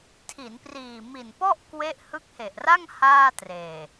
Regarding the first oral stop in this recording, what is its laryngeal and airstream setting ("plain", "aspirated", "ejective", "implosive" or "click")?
aspirated